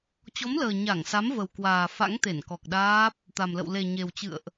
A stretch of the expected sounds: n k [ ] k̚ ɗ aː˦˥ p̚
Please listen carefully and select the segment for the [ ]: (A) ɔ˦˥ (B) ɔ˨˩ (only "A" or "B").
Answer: B